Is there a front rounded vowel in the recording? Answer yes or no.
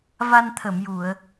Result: no